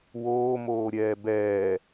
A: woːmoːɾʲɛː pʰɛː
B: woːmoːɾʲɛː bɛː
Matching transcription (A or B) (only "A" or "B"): B